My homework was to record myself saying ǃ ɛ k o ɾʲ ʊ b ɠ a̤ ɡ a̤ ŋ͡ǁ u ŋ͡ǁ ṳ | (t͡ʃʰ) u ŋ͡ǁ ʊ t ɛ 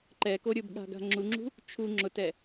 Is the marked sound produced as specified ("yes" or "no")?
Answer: yes